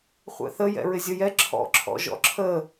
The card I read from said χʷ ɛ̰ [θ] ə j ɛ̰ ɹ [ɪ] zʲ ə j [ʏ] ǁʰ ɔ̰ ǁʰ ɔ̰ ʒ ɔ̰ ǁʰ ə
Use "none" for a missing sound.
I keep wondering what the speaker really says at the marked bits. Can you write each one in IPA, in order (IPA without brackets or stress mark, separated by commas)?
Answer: θ, ɪ, ɛ